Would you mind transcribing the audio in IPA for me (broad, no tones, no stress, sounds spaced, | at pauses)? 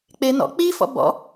k͡p e n ɔ̰ k͡p i f ɔ̰ b ɔ̰